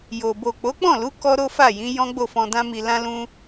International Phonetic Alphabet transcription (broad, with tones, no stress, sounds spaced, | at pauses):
j o˨ b o˨ k͡p o˨˦ k͡p ɔ̃˦˨ l u˨˦ k ɔ˦ ɾ o˦ f a˦˨ j ĩ˨˦ j ɔ̃˦ ɡ͡b o˦˨ f ɔ̃˧ d ã˦ m i˧ l ã˦ l ũ˦